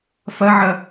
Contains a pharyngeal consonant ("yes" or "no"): yes